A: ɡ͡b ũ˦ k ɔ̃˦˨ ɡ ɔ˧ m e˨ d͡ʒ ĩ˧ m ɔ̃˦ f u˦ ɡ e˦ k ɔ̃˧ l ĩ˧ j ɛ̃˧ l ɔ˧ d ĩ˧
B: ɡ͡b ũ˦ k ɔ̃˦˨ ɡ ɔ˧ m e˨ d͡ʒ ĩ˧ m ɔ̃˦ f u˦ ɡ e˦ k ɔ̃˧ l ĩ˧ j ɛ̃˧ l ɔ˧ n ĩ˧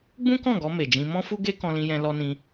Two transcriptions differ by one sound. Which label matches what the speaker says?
B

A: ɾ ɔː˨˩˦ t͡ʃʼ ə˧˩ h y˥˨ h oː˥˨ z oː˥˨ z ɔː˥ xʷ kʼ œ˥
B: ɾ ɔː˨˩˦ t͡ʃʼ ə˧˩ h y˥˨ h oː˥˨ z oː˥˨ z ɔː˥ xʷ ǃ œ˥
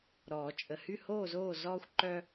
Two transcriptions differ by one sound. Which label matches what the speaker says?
B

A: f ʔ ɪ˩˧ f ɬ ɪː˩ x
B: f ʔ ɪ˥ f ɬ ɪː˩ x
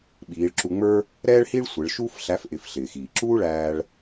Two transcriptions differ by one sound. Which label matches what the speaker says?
A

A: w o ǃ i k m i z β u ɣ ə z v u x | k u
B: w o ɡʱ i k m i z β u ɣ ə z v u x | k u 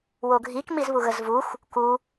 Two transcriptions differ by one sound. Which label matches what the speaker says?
B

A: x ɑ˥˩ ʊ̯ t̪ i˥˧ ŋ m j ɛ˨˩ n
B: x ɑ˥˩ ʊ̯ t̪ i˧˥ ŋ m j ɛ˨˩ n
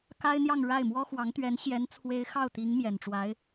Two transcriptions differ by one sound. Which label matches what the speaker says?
B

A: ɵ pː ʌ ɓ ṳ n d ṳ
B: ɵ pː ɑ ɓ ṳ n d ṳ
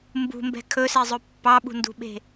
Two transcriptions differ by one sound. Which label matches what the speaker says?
B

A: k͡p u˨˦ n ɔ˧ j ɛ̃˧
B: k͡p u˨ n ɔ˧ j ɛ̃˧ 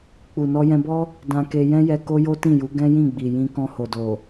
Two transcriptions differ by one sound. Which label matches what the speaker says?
B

